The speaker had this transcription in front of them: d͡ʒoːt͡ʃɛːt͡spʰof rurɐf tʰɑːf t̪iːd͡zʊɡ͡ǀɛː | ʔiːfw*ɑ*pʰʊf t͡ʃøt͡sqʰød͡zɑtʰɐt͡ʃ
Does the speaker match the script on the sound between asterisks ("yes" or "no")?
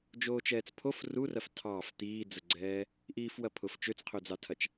no